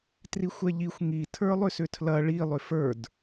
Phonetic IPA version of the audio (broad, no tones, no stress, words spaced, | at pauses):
trixʷɛʎixʷ ŋi tʰə˞lˠʏsʏtʰlɐ ɭi lˠʏfə˞d